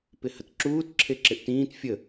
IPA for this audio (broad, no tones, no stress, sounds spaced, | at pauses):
p ɪ h ə t ǁ uː t ǁʰ e ǁ ɪ ʔ t ĩː t fʲ ə